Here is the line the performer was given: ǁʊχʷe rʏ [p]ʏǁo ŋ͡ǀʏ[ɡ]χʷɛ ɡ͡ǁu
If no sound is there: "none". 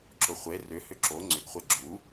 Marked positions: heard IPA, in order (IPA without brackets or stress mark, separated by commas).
h, ɡ